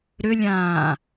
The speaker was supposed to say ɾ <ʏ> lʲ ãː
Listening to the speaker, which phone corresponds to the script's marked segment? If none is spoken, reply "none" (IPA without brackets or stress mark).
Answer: ʏ